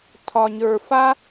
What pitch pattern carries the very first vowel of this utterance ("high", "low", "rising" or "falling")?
low